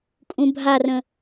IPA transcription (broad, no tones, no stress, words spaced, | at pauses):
kʼũbʱarə̃